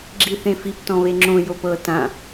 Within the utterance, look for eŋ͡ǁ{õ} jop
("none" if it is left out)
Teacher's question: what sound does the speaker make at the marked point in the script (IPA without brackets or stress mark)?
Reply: õ